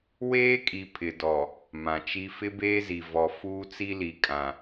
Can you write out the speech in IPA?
w eː˦ kʼ i˨ pʰ ɪ˨ d ɔ˨ | m ã˨ t͡ʃ i˦ f ɪ˦ b eː˦ z i˨ v ɔ˨ f uː˦ t͡s i˦ l i˨ kʼ ã˨

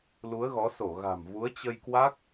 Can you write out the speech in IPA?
l u˨˦ ə̯ ɣ ɔ˨˦ s o˧˩ ɣ a̤˨˩ m v u˨˦ ə̯ t͡ɕ ə˧ j k w a˦˥ k̚

